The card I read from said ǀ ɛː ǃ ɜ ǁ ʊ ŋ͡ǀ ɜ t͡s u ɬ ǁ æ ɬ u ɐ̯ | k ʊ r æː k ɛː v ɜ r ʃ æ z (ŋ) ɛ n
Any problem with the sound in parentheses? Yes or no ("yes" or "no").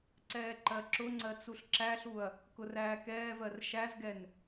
yes